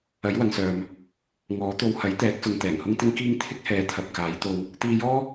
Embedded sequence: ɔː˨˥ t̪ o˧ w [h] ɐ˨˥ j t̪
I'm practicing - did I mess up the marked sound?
no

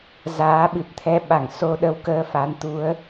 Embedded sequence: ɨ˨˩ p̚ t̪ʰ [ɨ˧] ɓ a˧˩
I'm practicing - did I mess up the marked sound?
yes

